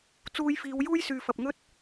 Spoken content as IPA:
t͡s uː˧ j f iː˨˧ w j uː˥ j s yː˨ f ɐ˨ p̚ ŋ ɵ˥ t̚

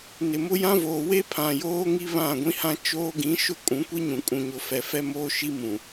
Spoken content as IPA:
n ɪ˨ m ʊ˦ j ã˦ v oː˨ w e˦ pʰ ã˨ j oː˦ ŋ i˦ β ã˦˨ ɡʷ ĩ˦ h ã˦ t͡ʃ oː˦ ɡ ĩ˨˦ ʃ ʊ˦˨ kʼ ũ˨˦ kʷ i˦ ɲ ũ˨ kʼ ũ˨ ɲ ʊ˨ f ɛ˨ f ɛ˦ m oː˦ ʃ i˦ m ũ˨

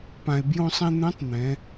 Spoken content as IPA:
p ã˩ e̯ b j õ˧ sˤ ɛ̃˧ n̪ ɛ̃˧˥ tˤ n̪ ɛ̃˩˧

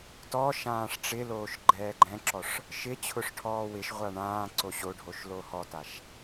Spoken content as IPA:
t ɔ ʃ ãː ʂ ʈ͡ʂ ɪ l oː ʃ ɡ͡ǃ ɛː ɡ͡ǃ ɛ̃ ǁ ɔ ʂ | ʃ ɪ t͡ɕʰ ʊ ʂ ʈʰ ɔː w ɪ ʃ ʁʷ a ɳ ãː ǀ o ɕ o ɖʱ o ʃ l o h ɔ t a ʃ

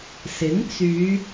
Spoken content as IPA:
s ɪ˨˥ ŋ t͡s yː˨˧

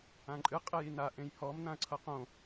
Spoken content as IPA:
ã ǃʼ ɨ qʼ e j i n a ʔ ẽ j h ɔ m n ã ɐ̯ ǀʰ ɤ q õ

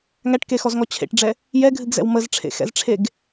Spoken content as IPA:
ŋ æ ʈ k e x ɔ z ŋ ɔ t͡ɕʰ ḛ ʈ ɖ͡ʐ ɛ | j ɛ ɡʱ ɨ ɡ z ɛ̰ w m ə z ʈ͡ʂʰ ḛ x ɛ̰ z ʈ͡ʂʰ e ɡ

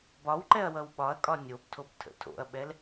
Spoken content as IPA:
b ɒ w ǃ ɛ ɐ̯ w ʌ w ɓ ɒ ɐ̯ kʼ ɒ nʲ o b tʰ o b tʰ ə̰ tʰ o̰ ɐ̯ ɓ ɛ l

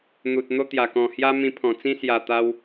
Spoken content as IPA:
n̪ u˨ t̚ n̪ o˦ t̪ j a˨˩ k ɔ̃˨˩ h j a˦ m ĩ˧ pʰ ɔ̃˨˩ t͡s ĩ˦ s j a˨˩ t̪ a˧ w

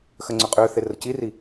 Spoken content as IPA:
x ə ŋ͡ǀ ʏ qʼ ʏː θ e r ə c i r i

